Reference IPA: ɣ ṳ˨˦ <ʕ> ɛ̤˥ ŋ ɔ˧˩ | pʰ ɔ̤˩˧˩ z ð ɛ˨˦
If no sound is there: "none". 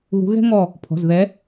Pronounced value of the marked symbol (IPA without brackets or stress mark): ɣ